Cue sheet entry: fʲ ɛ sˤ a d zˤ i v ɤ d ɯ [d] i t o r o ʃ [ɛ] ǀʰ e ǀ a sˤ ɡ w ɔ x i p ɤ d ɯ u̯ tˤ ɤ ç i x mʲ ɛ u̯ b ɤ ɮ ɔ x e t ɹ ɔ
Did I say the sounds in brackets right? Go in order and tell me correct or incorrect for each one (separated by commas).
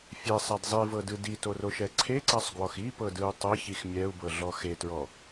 correct, correct